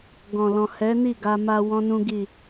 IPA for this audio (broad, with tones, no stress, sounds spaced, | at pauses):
ɡ ɔ̃˨ l ɔ̃˨ h ɛ˨˦ n i˦˨ ɡ a˧ m a˧ w ɔ̃˦ n ũ˦ ɡ i˦˨